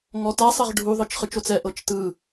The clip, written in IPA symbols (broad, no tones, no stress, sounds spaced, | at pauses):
ŋ ɔ t a sˤ ɛ ʁ ɖʱ u ðˤ ɯ t͡ʃ χ ɯ t͡ʃ o t͡s ɛ ʔ ɤ t͡ʃ t ɯ